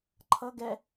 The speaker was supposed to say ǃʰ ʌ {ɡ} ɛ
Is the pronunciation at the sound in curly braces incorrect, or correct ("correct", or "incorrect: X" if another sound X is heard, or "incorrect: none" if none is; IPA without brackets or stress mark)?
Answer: correct